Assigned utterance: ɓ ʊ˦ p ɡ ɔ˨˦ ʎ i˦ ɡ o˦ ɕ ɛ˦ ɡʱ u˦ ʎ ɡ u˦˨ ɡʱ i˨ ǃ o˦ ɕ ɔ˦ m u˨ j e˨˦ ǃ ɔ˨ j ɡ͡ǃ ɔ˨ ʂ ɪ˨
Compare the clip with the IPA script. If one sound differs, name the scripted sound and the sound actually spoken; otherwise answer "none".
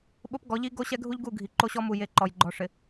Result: none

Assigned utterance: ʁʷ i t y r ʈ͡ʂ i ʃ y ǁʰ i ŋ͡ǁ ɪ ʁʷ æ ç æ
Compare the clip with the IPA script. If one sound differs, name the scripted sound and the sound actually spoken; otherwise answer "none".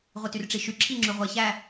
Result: ɪ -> y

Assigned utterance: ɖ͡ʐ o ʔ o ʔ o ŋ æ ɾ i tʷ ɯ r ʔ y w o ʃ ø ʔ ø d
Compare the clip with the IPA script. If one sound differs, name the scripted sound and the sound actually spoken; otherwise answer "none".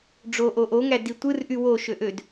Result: ɾ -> d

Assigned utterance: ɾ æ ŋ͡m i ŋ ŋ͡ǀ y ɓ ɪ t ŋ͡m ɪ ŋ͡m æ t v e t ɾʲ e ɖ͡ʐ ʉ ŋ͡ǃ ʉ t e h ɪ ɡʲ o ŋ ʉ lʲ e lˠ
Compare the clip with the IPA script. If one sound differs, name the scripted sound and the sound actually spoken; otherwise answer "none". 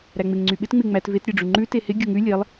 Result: i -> ɪ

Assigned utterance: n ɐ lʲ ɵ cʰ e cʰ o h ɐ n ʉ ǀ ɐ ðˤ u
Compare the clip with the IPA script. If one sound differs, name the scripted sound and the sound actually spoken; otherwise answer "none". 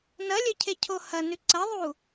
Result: none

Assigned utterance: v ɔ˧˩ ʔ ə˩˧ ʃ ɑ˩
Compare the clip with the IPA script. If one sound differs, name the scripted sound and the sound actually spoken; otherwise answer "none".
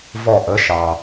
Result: none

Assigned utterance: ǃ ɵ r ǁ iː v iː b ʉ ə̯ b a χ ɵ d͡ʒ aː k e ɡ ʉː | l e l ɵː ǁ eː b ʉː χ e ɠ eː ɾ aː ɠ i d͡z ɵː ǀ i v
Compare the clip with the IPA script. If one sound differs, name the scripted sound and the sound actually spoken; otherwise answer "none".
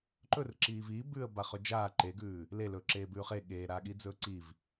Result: k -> ǃ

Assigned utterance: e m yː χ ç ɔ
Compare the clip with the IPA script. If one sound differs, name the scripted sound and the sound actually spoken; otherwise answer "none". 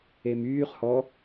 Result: ç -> h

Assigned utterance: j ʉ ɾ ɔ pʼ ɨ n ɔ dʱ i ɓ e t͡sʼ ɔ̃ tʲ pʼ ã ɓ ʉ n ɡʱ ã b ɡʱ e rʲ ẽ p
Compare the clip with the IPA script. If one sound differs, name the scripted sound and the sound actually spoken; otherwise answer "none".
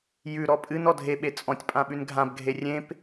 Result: i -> e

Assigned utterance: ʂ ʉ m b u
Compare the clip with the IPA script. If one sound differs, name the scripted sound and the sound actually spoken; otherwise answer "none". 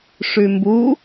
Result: none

